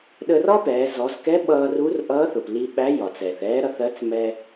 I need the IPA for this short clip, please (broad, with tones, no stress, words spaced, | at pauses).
ɗə˧rɒ˥pɛː˩˧ zɔ˩˧zkɛ˧˥ ɓʌː˧ru˧˥rʔʌː˧˥θʊ˩p li˧ɓæ˧˥ jɒ˩t͡sɛː˩θɛː˧˥ ɾʌ˧θɜ˧˥t͡s mɛ˧